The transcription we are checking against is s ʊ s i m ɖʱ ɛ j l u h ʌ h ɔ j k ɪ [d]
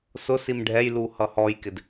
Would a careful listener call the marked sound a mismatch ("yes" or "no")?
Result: no